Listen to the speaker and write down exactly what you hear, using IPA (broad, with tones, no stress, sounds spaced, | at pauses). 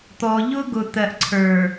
t̪ ɔ˨ ʎ ʊ˦ ɡ ʊ˨ t̪ ɜ˨ ʔ ǀʰ ə˞˨